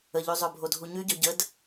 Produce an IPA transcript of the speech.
ə ʎ y zˤ ø bʱ o dʱ u ɲ y ɟ œ ɟ ə d

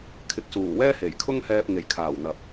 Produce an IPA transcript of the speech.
kʰ ɪ˨ k̚ s uː˨˩ w ɛː˥ h e˨˩ j kʰ ʊ˥ ŋ h ɛː˧ p̚ ŋ e˨˩ j kʰ aː˨˩ w n̪ ɐ˨ p̚

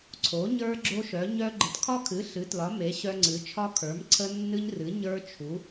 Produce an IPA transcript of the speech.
ǀʰ o˩˧ ɲ ə˞˧ ɡ͡ǁ o˧ ʃ œ˩˧ ɲ œ˧ ɡ͡ǃ ə˩˧ t kʰ ɒ˧ kʰ ɨ˩˧ ɬ ɨ˩˧ t l ɒ˩˧ m e˩˧ ɕ œ˧ ŋ͡ǀ ɨ˩˧ t͡ʃʰ ɒ˧ kʰ ə˞˩˧ m ǀʰ ə˧ nː ɨ˧ ɲ r ɨ˩˧ ɲ ə˞˧ t͡ʃʰ u˩˧

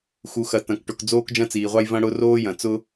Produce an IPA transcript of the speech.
x u˨ x ɐ˨ t ɐ̃˨ k ʈ ʊ˨ k d͡z oː˦ k d͡ʒ ɐ̃˦ t͡s iː˨ ʁʷ ɑ˦ j v ɐ̃˦ ɽ ʊ˦ r oː˦ j ɐ̃˨ t͡s ʊ˦

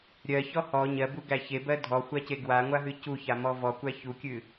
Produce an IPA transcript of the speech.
ɾʲ ɜ ç ɔ h ɔ ɲ ɜ b u ɡ æ ç e b ɜ dʱ ɔ xʷ a c e ɡ w a ŋʷ a ɦ ɨ c u ç a m ɔ v ɔ kʷ æ ç u kʲ ɨ

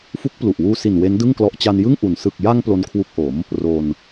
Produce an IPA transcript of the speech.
f u˦˥ k̚ p l u˨˩ ʔ w uː˧ s i˨˩ n w e˦˥ n d ɯ˥˩ ŋ k l ɔ˦˥ ʔ t͡ɕ a˧ n j ɯ˥˩ ŋ ʔ u˨˩ n s ɯ˨˩ k̚ j a˧ ŋ p l o˦˥ n kʰ w u˦˥ k̚ ʔ o˩˦ m | r o˧ n

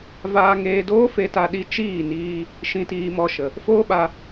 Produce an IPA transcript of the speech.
v aː˧ ŋ eː˧ d oː˦ f e˧ t a˧ ɗ i˧ t͡ʃ iː˦˨ n iː˧ | ʃ ĩ˨ t iː˨ m ɔ˨ ʃ ə˨ | f oː˦ ɓ a˧

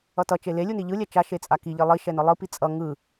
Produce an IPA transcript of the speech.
ʌ t ʌ t͡ʃ e l e lʲ u n i ʎ ɯ lʲ ɛ t͡ʃ a ʃ e t͡sʼ a k i ʎ i lˠ i ʃ ɛ n ɯ lˠ ɯ p i t͡sʼ ʌ ŋ ɯ

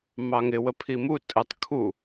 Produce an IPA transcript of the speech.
m ɑ ŋ ɪ w ə pʰ i m u tʼ ə tˤ kʰ u

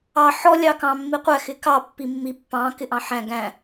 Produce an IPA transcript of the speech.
ɑ ħ ɔ lʲ ɑ k ɑ̃ mː i qʷ æ x ɪ k ɑ pː i mː i pː ɑ̃ k ɪ ʔ ɑ̃ ħ æ̃ ɡ æ̃

